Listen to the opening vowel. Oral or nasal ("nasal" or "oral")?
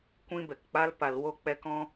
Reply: nasal